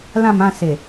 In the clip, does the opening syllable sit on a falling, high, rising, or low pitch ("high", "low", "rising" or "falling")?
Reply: falling